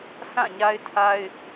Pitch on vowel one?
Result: falling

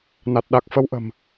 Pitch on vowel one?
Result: low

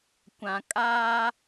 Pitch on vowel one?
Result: low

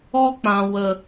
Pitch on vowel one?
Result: high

